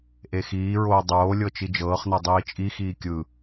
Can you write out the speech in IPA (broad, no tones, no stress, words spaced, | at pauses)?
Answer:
ʔexiːɹoː dˤoː lʲɤt͡ʃid͡ʒɤːχnɤ dˤiːt͡ʃʼixiː kʲɯ